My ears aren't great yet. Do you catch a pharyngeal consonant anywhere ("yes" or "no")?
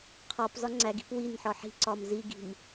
yes